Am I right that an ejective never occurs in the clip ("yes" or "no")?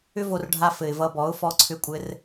no